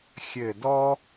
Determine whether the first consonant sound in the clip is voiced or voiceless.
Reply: voiceless